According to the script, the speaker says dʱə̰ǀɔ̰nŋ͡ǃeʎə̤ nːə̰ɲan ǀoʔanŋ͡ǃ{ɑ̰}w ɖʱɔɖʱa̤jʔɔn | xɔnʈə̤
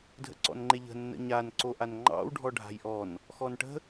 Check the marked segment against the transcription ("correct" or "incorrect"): correct